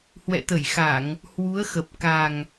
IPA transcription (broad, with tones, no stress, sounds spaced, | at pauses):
h w ɛ̰˧˨ t̪ ə˧˩ j x a˧˩˨ ŋ | h w u˨˦ ə̯ x ə˨˩ p̚ k a˨˩ ŋ